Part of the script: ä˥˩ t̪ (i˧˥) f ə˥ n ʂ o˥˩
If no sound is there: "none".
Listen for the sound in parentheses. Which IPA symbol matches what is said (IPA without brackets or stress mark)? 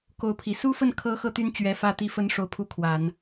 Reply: i˥